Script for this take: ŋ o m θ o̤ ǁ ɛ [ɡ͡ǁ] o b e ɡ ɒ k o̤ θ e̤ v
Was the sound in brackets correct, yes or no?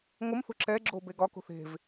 yes